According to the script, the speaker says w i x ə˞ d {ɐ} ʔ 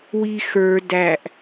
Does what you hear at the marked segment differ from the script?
yes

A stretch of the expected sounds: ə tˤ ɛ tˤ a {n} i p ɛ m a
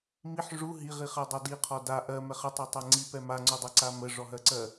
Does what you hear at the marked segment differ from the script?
yes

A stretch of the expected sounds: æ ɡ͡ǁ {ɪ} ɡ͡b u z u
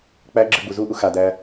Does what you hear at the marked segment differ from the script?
yes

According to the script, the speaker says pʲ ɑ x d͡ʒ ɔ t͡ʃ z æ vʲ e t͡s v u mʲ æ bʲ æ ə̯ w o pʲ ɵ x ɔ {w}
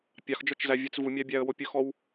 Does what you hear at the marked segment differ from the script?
no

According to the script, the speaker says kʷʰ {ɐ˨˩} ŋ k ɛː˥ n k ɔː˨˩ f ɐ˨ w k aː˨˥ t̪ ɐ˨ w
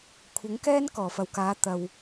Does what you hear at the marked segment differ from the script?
yes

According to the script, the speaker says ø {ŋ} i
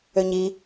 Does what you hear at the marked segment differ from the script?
yes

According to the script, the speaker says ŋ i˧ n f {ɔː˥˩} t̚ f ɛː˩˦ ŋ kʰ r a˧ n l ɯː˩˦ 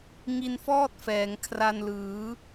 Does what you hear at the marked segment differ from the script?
no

